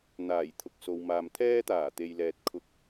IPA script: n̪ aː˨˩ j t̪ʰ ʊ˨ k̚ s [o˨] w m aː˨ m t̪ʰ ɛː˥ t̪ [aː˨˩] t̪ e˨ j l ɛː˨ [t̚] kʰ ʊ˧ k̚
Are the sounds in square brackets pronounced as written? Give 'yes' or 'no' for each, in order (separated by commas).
yes, yes, yes